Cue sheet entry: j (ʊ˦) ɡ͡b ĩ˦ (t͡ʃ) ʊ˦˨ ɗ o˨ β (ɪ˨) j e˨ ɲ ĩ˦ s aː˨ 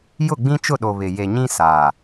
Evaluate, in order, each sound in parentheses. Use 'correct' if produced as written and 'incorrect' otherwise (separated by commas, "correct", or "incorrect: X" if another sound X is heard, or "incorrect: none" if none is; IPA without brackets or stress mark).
incorrect: ʊ˦˨, correct, correct